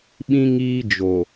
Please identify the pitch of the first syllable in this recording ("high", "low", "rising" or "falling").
high